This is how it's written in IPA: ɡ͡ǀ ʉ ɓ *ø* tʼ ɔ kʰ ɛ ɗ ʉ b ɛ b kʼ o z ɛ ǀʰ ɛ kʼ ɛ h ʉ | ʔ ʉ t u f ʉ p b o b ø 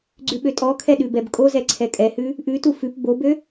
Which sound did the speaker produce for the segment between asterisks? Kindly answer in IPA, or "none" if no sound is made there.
ø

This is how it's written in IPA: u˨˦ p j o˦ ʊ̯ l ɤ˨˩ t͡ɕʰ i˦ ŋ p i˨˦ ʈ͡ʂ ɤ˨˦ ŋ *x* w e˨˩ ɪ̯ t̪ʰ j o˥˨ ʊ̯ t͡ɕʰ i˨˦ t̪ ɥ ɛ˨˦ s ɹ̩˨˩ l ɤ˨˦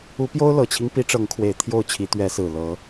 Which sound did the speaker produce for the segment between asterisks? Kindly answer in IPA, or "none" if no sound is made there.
kʰ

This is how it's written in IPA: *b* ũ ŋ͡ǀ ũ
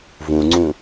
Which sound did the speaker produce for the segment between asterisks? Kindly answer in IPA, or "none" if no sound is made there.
v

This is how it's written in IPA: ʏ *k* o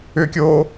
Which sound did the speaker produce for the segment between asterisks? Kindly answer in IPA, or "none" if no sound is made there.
kʲ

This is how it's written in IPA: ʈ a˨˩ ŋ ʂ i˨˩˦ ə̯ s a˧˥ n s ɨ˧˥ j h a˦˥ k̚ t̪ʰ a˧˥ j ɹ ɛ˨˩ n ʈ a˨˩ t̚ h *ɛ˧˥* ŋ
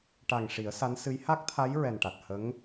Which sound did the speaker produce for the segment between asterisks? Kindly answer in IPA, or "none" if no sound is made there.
ə˧˥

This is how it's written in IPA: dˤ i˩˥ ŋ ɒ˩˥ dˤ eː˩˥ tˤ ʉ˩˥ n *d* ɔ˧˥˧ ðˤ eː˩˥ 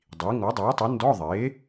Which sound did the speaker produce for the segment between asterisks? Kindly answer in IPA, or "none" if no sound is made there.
d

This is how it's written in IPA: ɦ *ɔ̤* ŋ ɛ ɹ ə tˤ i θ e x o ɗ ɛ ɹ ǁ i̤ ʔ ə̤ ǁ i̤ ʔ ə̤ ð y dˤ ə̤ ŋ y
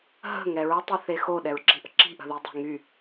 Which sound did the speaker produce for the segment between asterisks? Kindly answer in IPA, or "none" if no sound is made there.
ə̤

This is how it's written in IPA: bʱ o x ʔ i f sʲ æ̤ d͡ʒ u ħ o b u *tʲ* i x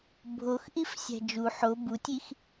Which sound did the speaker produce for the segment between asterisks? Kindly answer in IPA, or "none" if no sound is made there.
tʲ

